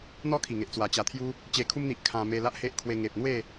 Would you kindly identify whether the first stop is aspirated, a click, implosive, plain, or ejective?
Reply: aspirated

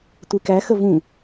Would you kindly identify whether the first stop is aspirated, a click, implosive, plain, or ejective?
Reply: plain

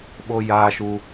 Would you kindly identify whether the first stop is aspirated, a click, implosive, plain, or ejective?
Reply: implosive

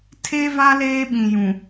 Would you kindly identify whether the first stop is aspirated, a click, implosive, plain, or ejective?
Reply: aspirated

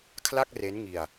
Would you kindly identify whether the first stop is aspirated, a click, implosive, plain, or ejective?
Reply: aspirated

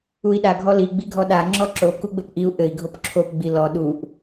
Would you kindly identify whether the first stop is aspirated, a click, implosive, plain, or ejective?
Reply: implosive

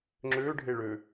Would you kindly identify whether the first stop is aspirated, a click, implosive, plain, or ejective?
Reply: click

